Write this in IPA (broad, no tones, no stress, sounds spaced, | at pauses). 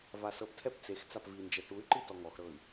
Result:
v a s ɤ p tʰ ɛ p t͡s e x t͡s a p v i n d͡ʒ ɛ ʈ u y̯ ǃ i t ɔ ŋ ɔ x ɾ ɤ i̯